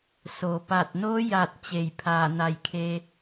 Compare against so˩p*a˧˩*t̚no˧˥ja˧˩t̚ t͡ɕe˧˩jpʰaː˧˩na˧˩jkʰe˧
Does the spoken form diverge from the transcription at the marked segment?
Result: no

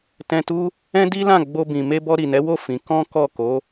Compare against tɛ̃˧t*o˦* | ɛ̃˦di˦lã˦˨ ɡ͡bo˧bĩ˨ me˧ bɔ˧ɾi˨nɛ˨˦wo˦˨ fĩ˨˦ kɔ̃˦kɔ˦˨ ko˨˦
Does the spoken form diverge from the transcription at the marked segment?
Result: yes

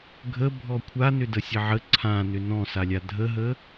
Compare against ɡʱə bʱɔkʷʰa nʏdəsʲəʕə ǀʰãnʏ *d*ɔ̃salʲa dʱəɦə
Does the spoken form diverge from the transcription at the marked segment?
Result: yes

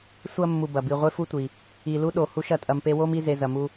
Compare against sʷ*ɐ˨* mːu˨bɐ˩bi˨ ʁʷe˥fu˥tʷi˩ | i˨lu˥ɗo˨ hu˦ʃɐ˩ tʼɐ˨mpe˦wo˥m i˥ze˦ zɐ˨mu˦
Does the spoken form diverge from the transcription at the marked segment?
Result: yes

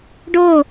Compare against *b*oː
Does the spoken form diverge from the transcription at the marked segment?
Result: yes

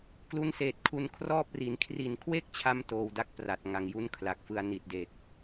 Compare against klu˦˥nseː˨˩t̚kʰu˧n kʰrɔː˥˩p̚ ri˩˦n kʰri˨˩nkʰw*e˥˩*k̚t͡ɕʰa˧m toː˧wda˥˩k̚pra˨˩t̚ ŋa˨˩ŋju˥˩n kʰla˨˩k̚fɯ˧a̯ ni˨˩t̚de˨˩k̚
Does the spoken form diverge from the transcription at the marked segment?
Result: no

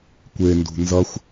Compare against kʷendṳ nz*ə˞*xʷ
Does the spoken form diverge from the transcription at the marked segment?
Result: yes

